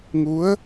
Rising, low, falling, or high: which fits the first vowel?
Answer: rising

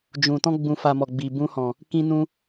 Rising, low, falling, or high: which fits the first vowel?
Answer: low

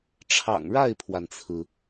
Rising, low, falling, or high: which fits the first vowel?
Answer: low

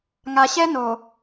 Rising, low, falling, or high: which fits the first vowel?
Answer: low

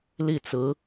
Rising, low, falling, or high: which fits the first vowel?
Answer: falling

